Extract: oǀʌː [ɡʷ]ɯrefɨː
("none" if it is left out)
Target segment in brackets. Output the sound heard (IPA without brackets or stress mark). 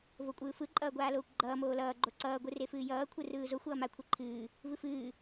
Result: ɡʷ